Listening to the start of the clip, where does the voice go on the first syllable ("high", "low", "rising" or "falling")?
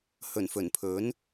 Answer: low